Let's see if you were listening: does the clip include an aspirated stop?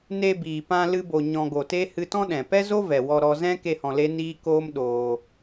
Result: no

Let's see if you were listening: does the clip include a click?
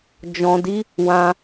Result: no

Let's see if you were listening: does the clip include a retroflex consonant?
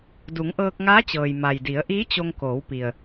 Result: no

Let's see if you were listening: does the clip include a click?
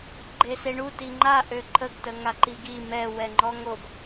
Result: yes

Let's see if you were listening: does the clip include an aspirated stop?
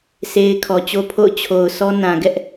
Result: yes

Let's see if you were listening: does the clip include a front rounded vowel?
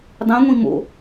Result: no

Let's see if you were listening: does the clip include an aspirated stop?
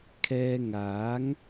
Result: yes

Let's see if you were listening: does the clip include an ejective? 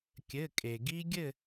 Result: yes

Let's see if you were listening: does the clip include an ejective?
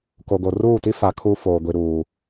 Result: no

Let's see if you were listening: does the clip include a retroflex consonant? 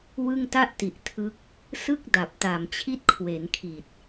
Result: no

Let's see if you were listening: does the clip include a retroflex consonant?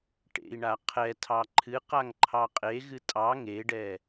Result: yes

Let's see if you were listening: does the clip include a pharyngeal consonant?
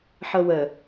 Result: yes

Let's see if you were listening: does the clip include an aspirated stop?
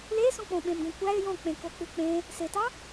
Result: no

